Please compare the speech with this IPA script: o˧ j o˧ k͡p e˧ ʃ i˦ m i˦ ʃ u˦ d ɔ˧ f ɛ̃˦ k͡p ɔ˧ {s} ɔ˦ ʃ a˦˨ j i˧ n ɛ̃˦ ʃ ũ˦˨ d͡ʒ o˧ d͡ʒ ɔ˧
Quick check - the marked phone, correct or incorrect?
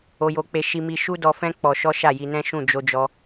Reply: incorrect